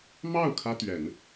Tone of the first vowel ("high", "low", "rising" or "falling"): falling